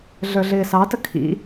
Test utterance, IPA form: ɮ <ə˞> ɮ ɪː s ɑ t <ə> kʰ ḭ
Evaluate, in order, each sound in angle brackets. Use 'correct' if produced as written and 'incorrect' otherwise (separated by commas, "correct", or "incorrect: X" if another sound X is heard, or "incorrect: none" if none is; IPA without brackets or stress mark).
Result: correct, correct